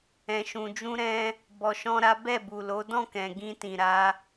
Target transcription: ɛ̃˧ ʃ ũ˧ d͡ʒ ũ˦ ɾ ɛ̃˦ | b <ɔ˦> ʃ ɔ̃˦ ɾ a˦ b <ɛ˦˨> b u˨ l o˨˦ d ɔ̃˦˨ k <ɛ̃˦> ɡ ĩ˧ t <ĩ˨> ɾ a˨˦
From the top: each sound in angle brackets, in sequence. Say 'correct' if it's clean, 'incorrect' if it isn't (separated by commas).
incorrect, correct, incorrect, correct